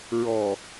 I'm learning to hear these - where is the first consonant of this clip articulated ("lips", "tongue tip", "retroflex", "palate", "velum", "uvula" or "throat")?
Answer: tongue tip